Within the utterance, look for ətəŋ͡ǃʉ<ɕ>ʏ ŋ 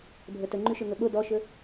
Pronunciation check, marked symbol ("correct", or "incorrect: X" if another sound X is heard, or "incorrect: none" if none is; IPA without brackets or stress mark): incorrect: ʃ